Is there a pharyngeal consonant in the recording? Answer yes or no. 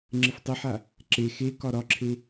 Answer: yes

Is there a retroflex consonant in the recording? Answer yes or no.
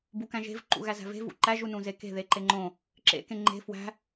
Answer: no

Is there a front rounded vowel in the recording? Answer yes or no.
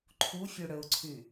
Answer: yes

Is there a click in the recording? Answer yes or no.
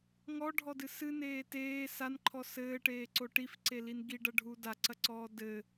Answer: yes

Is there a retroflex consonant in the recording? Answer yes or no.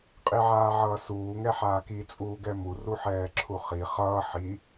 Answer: no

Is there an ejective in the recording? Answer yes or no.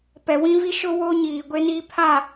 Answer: no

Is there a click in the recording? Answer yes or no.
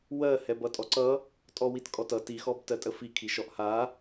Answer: yes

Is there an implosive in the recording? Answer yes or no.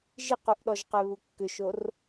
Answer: yes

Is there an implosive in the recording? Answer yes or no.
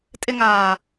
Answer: no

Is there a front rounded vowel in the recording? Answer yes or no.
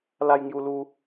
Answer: no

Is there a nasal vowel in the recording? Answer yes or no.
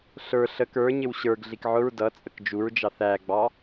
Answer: no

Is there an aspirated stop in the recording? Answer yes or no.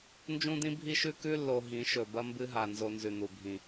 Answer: no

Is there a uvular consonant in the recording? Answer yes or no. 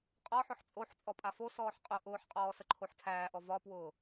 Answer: yes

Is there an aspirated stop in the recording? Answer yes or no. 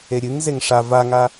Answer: no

